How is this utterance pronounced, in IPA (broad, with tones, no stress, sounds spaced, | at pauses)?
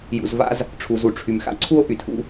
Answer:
j ṵ˩ z v a̰˦ z | ʈ͡ʂʰ u˩ z u˩ ʈ͡ʂʰ y˩ m x a̰˥ ǀʰ u˥ o̯ ʔ y˩ tʰ ṵ˥